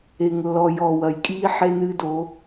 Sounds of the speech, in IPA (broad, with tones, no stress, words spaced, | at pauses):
e˨ŋlːɔ˨jɔ˨ wɐ˨jkʼiː˦ ħe˦nɨː˦do˨˦